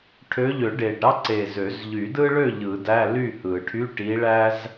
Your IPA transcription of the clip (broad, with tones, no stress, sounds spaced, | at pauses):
ʈʰ ø˨˦ ʎ ø˨˩˦ ɖ e˨˩ ɖ ɾ ɑ˥ ǀ e˨˩ z ø˨˩˦ z ʎ y˨˩˦ d ɯ˥ ɭ ø˥˨ ʎ ɯ˨˩˦ d æ˧˥˧ l y˥˨ h ɯ˨˩˦ ʈʰ y˧˥˧ ʈ i˨˦ ɭ æ˥ z